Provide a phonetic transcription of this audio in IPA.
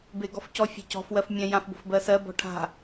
b e ɡ ɔ f c ɔ fʲ a̤ c ɔ̤ f w ɜ f mʲ ɛ̃ j ã f b o̤ f b ɜ s ɜ b ɔ̤ ʈʰ a̤

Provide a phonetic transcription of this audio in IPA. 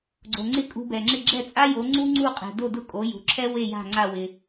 ɡ͡ǀ o˩ ŋ͡ǀ ɪ˥ kʼ ṳ˧ b ɛ˩ ŋ͡ǁ ɪ˥˩ ɡ͡ǁ ɛ˥˩ t͡sʼ a˥ j o˩˥ ŋ͡ǀ u˥ ŋ͡ǀ u˥˩ qʼ ɛ̤˩ d o˥˩ d ʊ˥˩ kʼ o˩˥ j ṳ˩ ǁʰ ɛ˥ w e˥˩ j a̤˥˩ ŋ͡ǀ a˥˩ w ɪ˩

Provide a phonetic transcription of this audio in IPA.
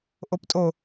ʔ o p tʼ o

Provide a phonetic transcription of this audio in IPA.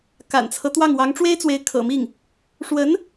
k a̰˨˩ n t͡sʰ ɤ˦ t̪ w ɑ˥˩ ŋ w ɑ˧˥ ŋ ʈ͡ʂ w e˥ ɪ̯ t͡s w e˧˥ ɪ̯ kʰ ɤ̰˨˩ m i˥˩ ŋ | ʂ w ə˧˥ n

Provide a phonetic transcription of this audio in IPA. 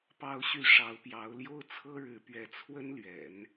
p ɑ˥ ʊ̯ ɕ y˥˩ ʂ ɑ˧˥ ʊ̯ p j ɑ˧˥ ʊ̯ l j o˥ ʊ̯ t͡sʰ ɤ˥ ɻ ɻ̩˧˥ p ɥ ɛ˧˥ t͡sʰ w ə˥ n l ɥ ɛ̰˨˩˦ n

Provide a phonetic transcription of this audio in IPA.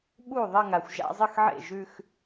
ɓ u˥˩ ðˤ ɐ˥˧ ŋ a˨ xʷ ʒ a̰˥˧ zˤ ɨ˥˩ x ʕ ḛ˥˩ ʒ ʉ˥˧ x

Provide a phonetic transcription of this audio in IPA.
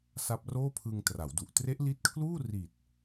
s a˦˥ p̚ r oː˥˩ pʰ ɯ˧ ŋ t r a˩˦ w d u˨˩ ʔ t r e˦˥ ʔ l i˦˥ t̚ kʰ l uː˥˩ r i˨˩ t̚

